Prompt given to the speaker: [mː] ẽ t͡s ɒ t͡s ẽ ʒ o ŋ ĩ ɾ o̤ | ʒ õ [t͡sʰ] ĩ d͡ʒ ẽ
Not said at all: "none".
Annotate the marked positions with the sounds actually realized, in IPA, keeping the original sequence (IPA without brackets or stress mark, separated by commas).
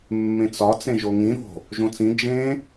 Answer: mː, t͡s